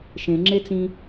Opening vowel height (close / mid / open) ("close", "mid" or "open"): mid